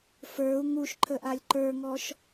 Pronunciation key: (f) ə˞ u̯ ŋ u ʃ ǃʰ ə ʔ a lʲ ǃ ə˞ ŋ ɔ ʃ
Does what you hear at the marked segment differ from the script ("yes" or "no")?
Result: no